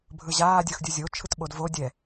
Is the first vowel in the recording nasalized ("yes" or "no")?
no